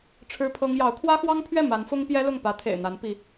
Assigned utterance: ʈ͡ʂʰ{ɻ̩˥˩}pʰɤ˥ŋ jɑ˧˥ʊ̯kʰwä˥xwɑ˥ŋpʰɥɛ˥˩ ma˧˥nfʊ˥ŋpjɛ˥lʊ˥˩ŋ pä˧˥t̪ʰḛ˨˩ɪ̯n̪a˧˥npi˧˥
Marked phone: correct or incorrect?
incorrect: ɻ̩˥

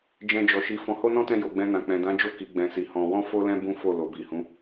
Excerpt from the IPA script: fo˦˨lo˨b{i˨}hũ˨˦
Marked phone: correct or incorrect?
correct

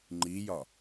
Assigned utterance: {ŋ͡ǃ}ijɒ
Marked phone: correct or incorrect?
correct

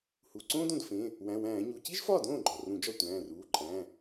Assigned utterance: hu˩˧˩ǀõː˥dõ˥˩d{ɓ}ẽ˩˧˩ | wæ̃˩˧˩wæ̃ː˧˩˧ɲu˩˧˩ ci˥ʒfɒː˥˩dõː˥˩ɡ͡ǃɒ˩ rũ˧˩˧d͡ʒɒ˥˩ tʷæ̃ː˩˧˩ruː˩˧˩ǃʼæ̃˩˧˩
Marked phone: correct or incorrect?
incorrect: f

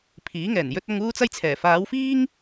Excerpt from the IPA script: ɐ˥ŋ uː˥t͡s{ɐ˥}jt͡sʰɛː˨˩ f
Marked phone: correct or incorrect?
correct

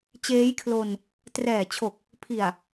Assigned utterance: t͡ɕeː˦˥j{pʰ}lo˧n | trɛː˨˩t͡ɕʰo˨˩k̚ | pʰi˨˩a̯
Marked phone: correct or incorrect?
incorrect: kʰ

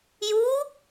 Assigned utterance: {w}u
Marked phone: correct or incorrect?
incorrect: j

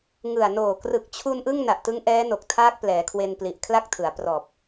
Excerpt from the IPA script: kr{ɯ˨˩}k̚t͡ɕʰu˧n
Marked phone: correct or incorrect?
correct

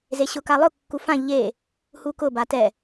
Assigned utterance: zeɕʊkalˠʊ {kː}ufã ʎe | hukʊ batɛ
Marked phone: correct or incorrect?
correct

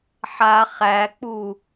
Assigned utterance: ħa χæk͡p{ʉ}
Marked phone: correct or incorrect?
incorrect: u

